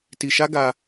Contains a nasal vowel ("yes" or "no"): no